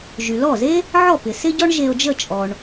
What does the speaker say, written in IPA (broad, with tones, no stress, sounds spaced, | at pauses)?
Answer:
ʒ y˩ l ɔ˥˩ z e˥ | ʕ ɔ˥˩ p ɪ˩ s ɪ˥ ɟ ɔ˥ ɳ ʒ e˧ o̯ d͡ʒ ə˥˩ t͡ʃʼ ɔ˩ ɳ